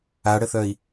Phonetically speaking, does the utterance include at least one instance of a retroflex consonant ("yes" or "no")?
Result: yes